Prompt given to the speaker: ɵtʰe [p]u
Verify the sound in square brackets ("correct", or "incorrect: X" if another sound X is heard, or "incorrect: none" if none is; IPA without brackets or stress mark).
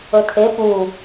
correct